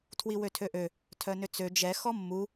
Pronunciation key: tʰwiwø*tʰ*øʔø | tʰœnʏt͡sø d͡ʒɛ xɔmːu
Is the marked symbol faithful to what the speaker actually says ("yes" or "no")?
yes